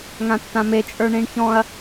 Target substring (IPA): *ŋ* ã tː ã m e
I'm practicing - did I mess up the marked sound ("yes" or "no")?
no